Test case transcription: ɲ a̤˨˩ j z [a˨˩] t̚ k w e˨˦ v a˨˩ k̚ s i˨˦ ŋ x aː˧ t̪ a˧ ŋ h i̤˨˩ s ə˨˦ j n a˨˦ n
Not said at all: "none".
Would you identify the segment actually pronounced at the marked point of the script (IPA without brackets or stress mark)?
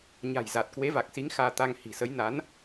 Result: a˨˩